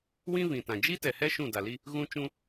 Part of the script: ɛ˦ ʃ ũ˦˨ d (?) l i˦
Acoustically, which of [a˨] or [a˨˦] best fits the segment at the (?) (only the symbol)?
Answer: a˨